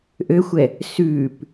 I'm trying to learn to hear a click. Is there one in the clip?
no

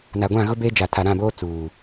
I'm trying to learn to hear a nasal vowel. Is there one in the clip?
yes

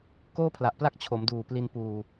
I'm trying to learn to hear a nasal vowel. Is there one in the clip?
no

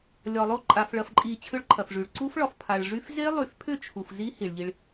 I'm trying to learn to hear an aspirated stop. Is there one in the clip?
yes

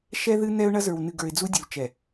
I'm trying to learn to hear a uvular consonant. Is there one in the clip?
no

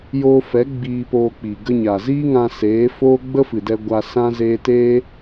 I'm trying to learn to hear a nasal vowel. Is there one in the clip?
yes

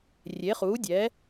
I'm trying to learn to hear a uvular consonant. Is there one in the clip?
yes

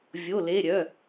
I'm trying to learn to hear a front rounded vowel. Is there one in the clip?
yes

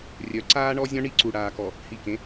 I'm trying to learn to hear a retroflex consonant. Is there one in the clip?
yes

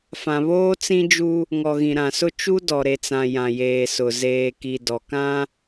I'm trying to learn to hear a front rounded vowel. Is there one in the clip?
no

